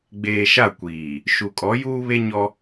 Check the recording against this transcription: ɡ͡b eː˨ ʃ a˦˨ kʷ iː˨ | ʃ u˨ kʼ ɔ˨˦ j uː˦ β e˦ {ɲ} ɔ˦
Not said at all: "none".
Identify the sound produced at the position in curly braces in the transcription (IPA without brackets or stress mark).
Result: ɲ